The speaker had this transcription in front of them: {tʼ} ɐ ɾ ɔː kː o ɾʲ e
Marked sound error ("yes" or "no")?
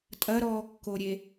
no